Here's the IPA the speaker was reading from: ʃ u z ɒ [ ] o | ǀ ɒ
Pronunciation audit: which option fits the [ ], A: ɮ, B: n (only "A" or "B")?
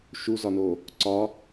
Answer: B